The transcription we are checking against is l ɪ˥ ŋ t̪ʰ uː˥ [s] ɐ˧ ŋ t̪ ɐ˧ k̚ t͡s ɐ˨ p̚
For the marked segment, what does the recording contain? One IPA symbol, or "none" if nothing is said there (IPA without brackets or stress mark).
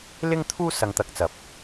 s